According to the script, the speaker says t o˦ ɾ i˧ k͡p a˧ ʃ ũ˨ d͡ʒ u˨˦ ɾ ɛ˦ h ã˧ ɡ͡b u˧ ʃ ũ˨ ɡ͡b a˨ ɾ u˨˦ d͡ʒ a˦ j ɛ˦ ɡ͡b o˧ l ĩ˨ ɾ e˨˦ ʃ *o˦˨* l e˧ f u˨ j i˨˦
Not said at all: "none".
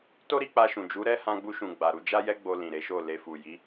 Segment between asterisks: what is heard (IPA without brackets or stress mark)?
o˦˨